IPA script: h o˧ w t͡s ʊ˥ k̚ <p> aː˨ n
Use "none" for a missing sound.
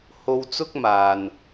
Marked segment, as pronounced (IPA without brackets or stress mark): m